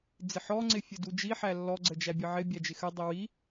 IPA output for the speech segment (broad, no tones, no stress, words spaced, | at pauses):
d͡zɪħɔŋ͡ǀɪ fʲədud͡ʒiħæ lːɔɡ͡ǀə d͡ʒæbʲəʕɪbʲæ d͡ʒɪxədˤi wi